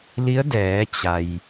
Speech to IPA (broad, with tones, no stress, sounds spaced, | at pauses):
l i˧˥ ə̯ d ɛː˩˧ t͡ɕ a˩ j